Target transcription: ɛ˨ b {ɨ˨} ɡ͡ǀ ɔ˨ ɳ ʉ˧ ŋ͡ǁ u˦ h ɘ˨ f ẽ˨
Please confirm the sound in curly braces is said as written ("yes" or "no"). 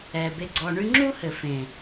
no